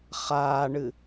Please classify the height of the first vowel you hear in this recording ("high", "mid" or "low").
low